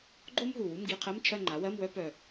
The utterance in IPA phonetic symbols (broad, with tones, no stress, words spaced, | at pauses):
ɡ͡ǃo˥m ɦu˨˩wu˧˥˧mɡi˧˥˧qʰɜ˧˥˧m t͡ʃʰɜ˥˧ŋ͡ǃa˩˥wɜ˧˥˧mwœ˥ pœ˨˩